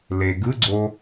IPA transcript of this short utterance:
l e ɡ ɯ ɡ͡ǀ o

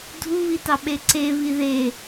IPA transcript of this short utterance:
dʱ u β i t ɑ ɓ e ǀ e β i ð e

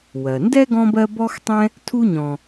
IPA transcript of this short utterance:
w ɜ˩ n d ɛ˥ ɡ ɔ̃˦ b ɜ˦ b ɔ˥ x tˤ ɛ̃˥ | tʰ u˦ ɲ ɔ̃˨

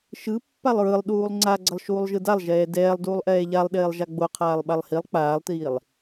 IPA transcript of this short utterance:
ʃ ɯ pː a lˠ ɹ ɯ lˠ ɗ uː lˠ ŋ͡ǀ a ɡ͡ǀ ʌ lˠ ʃ uː lˠ ʒ ɯ d a lˠ ʒ ɛː d ɛː lˠ d uː lˠ ʔ ɛː ʎ a lˠ ɗ eː lˠ ʒ a ɡ͡b o qʰ aː lˠ ɓ a lˠ h i lˠ k͡p aː lˠ t iː lˠ

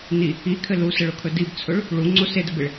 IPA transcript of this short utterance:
n i | i kʰ ɘ l u s ə ɭ ʊ kʰ ɵ d i b t͡sʰ ʊ ɭ | ɭ u ŋ͡ǀ o s e d ɘ b e ɭ

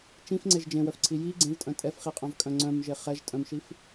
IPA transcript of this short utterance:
t͡ʃ ĩ f ŋ͡ǀ e ʒ d͡ʒ ẽ w œ f ǀʰ i j i ɡ͡ǀ ẽ v tʼ œ̃ tʼ ɛ f χ i qʼ œ̃ v kʼ œ̃ ŋ͡ǀ œ̃ m ʒ e χ ɛ ʒ tʼ œ̃ m ʃ i f

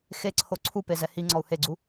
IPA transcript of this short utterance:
x e ǀʰ o ǀʰ u p e z ɛ h i ŋ͡ǀ ɔ u̯ h e ɡ͡ǀ u

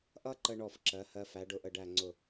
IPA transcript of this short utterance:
ʔ ʌ˥ ǃ ə˧ ɳ ɔ˧˩ f ǁ ɜ˩˧ h ɜ˧ f æ˩˧ ɖ ʊ˧˩ ʔ ə˧˩ ɖ æ˧˩ ŋ͡ǀ ʊ˧˩

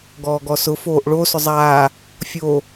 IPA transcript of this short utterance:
ɡ ɔː ɡ ɔ s ʊ f oː ʔ ɭ o s ʊ zˤ aː | fʲ o

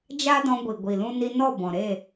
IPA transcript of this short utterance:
d͡ʒ a˦ d ɔ̃˧ ɡʷ i˨ ɡʷ i˨ l ũ˧ n i˧ n ɔ˦˨ b ɔ̃˨ ɾ e˦˨

